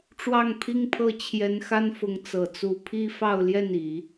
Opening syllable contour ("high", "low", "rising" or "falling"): falling